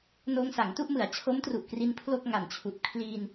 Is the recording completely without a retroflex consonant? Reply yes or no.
yes